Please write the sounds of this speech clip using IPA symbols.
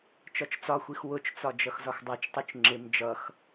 t͡ʃ ɒ t͡ʃ t͡s ɒ xʷ i x w ʊ t͡ʃ t͡s ɒ d͡ʒ ʌ x z ɒ x dˤ æ t͡ʃ tˤ u t͡ʃ ŋ͡ǁ ɪ m d͡ʒ ʌ x

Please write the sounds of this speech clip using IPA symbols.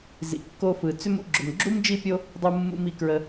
z ḭ˩ kː o˧ f ɯ˩ t͡s ʏ˥ m ṵ˧ ɡ͡ǁ ʏ˩ m ɡ͡ǁ u˥ m d͡ʒ i˥ pʲ o˥ | dˤ u˧ mː ṵ˧ m i˩ k ɹ ə˧

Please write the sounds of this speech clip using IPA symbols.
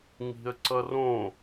ŋ i̤ ə̯ ǀ ʌ r õ

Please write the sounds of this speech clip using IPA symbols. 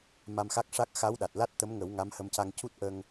m a˧ m x a˦˥ k̚ ʂ a˦˥ k̚ x a˧˥ w ɗ a˨˩ t̚ l a˦˥ t̚ t̪ ə˧˥ m ŋ ə˨˩˦ w ŋ a˧˥ m h ə˧ m c a˧ ŋ c u˦˥ t̚ ʔ ə˧ ŋ

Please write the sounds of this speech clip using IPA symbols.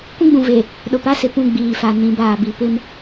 kʷ ĩ˦ ɡ͡b ũ˨ v e˨ | ɗ ʊ˨ p a˦ s ɪ˨ p ũ˦˨ ɡ͡b iː˨ f a˨ n ĩ˨˦ b aː˨ b i˨ p ɪ˦ m

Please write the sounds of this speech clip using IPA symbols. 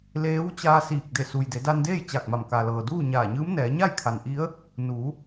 l eː˧˥ w t͡ɕ aː˧ s iː˧˩ k̚ d e˧˩ s u˩ j d e˩˧ d a˧ n d eː˥˨ j t͡ɕ a˧˩ k̚ m a˧˩ m k a˩ l ɤː˩ d uː˥˨ ɲ aː˧˩ ɲ ɯː˧˥ m n ɛː˩˧ ɲ a˥˨ j kʰ a˩ n ʔ i˧˥ ə̯ | n uː˩˧

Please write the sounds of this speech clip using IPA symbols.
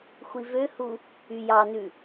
xʷ i v ø h u | y j ɑ n ʉ

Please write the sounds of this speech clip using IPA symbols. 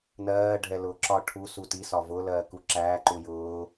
n ɜː ɖʱ ɛ l ʊː ǁ ɒ ʈʰ u s u t i s ɒ v ʊ l ɜː k u ǁ æː ǃ u j ʊː

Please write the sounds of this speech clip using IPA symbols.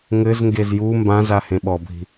ŋ ɘ z ŋ ɡ e z j u m b ã z a h ẽ ɓ ɔ bʱ i̤

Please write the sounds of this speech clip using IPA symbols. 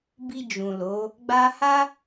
b i˧ d͡ʒ ũ˨ l o˨˦ | ɡ͡b a˧ h a˦

